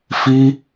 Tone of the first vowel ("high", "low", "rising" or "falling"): high